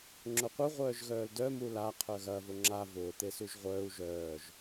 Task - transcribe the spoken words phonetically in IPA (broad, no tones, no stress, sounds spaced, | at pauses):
ŋ͡ǁ ʊ qʷ œ ʁʷ œː ʒ ɣ œː l d œ m u l a qʰ œ ɣ ɐ v ʊ ŋ͡ǁ a v ʊː t̪ e s u ʒ ʁʷ œː u̯ ʒ œː ʒ